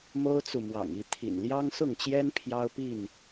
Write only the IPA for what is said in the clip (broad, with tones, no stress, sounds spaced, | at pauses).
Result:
m o˦ ʊ̯ t͡s u˨ m w ɑ̰˨˩ ŋ i˥˨ t̪ʰ ḭ˨˩ n l j ɑ˦ ŋ s ʊ˥˨ ŋ t͡ɕ j ɛ˦ n pʰ j ɑ˦ ʊ̯ p i˥˨ n